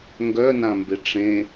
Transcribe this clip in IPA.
ŋɡœnãmbe ʈ͡ʂẽ

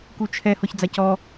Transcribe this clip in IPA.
kut͡ʃʰɛ hɔçd͡zacɔ

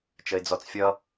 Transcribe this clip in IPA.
t͡ʃəɪ̯d͡zɔt͡sfʲʌ

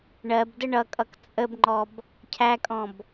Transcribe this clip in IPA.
ɳɜbdə ɳʌkʼʌk t͡sʼəbŋ͡ǃɔb | cʰækʼɔ̃b

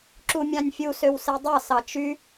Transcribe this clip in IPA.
ǁumʲɑ̃nʲfʲu søwsedˤɑ sɑt͡ʃy

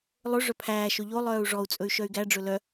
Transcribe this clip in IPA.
lˠɵ ʐœpʰæːʃɵ ʎo lˠœːu̯ʐɔu̯t͡sʼɵy̯ ʃœy̯ɡæɖ͡ʐɵ lœ

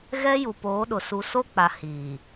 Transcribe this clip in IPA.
ɣɛ˦ju˨poː˨˦ɗʊ˨ su˨so˦k͡pa˨ hi˨

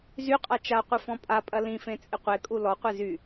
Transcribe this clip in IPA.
zyqʼa t͡ʃaqʷɨ fɔ̃pʼapʼɐ lĩfẽ t͡sʼɪqʷekʼu lɔqʷe zy

